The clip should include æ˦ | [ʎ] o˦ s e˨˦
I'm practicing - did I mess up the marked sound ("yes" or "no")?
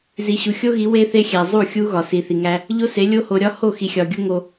no